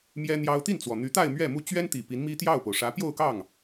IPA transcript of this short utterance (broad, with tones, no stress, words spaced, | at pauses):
mjɛ˥n̪jɑ˥ʊ̯ t̪i˥˩nt͡swɔ˩ n̪y˧˥t̪a˥˧ɪ̯ mɥɛ˥˩mu˥ t͡ɕɥɛ˥nt̪i˨˩ pi˧˥nmi˥t̪jɑ˥˩ʊ̯po˩ʊ̯ ʂä˧˥ pjo˥˧ʊ̯kɑ˥˩ŋ